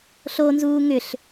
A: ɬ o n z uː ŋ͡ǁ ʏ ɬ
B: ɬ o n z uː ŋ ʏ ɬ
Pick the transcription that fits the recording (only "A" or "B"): B